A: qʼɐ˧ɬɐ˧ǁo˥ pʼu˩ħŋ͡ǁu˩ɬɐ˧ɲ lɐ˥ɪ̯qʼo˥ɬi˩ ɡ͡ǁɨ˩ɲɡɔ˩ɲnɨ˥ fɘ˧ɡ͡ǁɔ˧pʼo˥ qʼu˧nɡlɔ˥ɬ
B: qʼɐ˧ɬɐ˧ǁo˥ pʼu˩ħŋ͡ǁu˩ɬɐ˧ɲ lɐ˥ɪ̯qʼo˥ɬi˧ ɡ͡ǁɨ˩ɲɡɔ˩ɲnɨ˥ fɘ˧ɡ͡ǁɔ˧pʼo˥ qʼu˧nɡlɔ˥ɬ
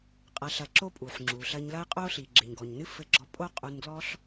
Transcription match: A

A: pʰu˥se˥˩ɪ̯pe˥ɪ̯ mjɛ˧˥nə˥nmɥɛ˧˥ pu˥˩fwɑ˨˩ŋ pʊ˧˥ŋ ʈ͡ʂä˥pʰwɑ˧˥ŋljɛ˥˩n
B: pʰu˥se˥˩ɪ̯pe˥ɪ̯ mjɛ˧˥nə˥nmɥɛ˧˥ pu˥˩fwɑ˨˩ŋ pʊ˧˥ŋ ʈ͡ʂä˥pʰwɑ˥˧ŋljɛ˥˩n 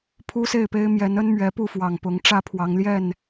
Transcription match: A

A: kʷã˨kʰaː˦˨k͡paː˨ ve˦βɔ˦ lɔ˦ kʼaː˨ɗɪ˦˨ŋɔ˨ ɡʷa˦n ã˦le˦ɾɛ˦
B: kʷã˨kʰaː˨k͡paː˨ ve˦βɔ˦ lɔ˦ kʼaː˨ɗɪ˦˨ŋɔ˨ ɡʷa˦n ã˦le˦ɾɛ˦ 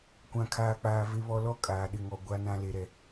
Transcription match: B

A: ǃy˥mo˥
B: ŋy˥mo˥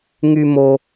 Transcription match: B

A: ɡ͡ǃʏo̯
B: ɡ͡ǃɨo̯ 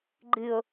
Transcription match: B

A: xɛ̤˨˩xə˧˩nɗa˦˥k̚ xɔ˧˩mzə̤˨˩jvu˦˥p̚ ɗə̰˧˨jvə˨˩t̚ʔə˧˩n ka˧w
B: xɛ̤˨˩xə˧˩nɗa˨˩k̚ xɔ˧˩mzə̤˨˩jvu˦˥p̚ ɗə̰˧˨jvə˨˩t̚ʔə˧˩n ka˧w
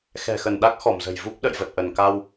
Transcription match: A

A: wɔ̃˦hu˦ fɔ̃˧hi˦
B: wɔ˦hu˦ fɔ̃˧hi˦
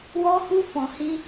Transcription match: B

